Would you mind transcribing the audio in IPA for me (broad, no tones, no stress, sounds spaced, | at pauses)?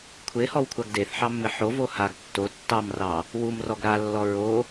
kʷʰ e h ɔ w kʷʰ a ɡ d e θ ħ ɑ mː ɪ ħ o v o h a ɡ tː o tː ɑ m r ɑ | w u m r ɔ ɡ ɾ a lː ɔ ɹ o